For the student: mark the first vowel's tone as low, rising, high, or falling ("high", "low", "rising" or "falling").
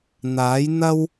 rising